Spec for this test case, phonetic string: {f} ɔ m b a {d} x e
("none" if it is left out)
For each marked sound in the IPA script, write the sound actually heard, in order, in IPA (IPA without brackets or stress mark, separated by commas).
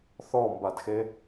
θ, d